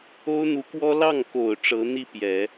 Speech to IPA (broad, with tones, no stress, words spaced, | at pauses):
o˥ʊ̯n̪u˧˥kwɔ˥ lɑ˥˩ŋko˨˩ʊ̯ ʈ͡ʂɤ˧˥n̪i˥˩pjɛ˨˩˦